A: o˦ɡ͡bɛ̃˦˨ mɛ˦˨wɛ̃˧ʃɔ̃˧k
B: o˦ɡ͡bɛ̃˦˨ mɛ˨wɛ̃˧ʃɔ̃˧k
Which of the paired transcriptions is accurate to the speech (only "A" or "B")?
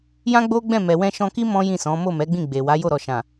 B